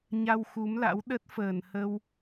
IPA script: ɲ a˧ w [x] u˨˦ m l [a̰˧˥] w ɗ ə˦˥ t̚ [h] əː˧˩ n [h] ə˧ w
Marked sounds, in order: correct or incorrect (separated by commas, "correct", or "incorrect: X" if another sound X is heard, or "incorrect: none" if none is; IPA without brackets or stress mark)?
correct, correct, incorrect: f, correct